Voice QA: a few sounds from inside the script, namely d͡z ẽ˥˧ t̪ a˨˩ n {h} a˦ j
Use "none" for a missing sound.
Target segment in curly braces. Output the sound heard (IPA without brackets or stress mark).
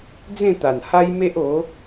h